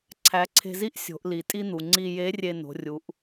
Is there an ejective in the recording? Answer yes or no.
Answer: yes